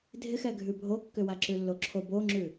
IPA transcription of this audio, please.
dʱ ɪ x ɛ ɡʱ ʉ bʱ o kː ʏ w a ǁ ʉ lː o ǁʰ o b o ŋ͡ǁ ʉ

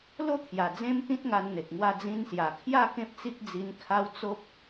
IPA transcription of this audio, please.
l o˥˧ t̪ʰ j a˨˩ d͡z ẽ˦ m t̪ ĩ˦ t̚ ŋ a˧ n n̪ e˨ k̚ ŋ w a˧ d͡z ĩ˧ n s j a˨˩ kʰ j a˥˧ k ẽ˦ p̚ t͡s i˦ k̚ d͡z i˧ n kʰ a˦ w t͡s o˦ p̚

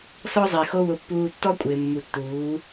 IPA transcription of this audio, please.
s ɔ˦ zˤ i˨ x o˦ w ʊ˧ pː uː˧ tː ɔ˦ kʷʼ ɪː˨ mː u˨ tː uː˨˦

